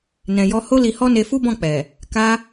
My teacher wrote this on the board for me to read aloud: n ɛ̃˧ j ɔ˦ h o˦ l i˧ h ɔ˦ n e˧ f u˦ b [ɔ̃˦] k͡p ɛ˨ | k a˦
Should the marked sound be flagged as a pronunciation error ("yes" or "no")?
yes